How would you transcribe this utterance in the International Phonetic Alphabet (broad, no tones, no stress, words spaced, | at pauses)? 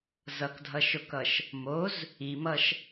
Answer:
zʌkdʱʌʃokʌʃ | moz | imʌʃ